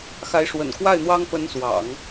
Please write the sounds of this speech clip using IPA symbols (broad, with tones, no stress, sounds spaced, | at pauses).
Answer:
x a˧˥ ɪ̯ ʂ w ə̰˨˩ n k w a˥˩ ɪ̯ n̪ w ɑ˥ ŋ p ə˧˥ n s w ɑ̰˨˩˦ ŋ